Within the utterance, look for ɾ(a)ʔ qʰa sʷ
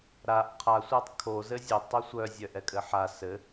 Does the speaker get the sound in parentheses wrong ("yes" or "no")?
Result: no